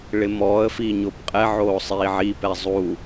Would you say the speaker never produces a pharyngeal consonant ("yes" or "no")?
no